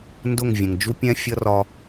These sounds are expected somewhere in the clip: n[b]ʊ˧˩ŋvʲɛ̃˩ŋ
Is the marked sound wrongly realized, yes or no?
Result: yes